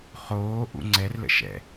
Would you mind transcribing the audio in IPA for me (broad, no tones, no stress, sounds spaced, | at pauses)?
χ oː ʔ ṵ ŋ͡ǀ ɛ r l ə̰ ʃ ɛ̰